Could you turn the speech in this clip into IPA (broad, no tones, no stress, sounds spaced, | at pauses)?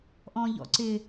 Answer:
ʔ ɔ̃ ʎ ɔ̰ ǀ ɪ